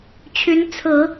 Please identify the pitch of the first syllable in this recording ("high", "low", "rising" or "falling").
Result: rising